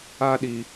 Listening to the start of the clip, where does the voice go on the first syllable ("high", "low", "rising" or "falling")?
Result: high